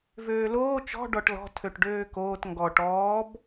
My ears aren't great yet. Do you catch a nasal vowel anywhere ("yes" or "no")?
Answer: no